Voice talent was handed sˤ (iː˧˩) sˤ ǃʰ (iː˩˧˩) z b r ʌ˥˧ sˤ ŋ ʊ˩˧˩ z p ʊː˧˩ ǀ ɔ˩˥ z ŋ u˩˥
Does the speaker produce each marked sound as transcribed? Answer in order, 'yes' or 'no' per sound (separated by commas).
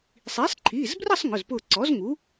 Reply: no, yes